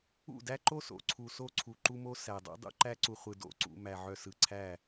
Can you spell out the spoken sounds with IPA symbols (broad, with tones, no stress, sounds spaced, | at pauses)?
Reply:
ṵ˦˨ d æ˦ ǃ o˦ s o̰˨ ǀʰ u˨ s o˦ ǀʰ u˨ ǃ u˦ m o˦ s æ˨ dˤ ṵ˦ dˤ ṵ˦ ǃ æ˦ ǀ u˨ χʷ ɯ˨ d o̰˦ ǀ ṵ˨ m æ˨ ʕ œ˨ s ɯ˨ ǀʰ æ˦˨